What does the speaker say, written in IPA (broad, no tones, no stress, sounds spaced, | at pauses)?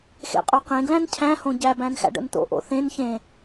x ḛ qʼ o q ẽ ɡ l æ̃ n cʰ æ̃ h õ ɟ æ b æ̃ n x æ̰ ɖ ə̰ n t̪ o̰ ʔ o̰ θ ẽ n ç ẽ